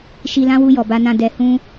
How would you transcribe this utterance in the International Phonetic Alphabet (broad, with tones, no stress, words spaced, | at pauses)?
ʃi˧lã˦wu˧ jɔ˨ba˧nã˧ dɛ˧ hũ˦